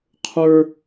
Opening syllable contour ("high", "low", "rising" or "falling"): high